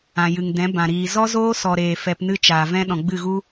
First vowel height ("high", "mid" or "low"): low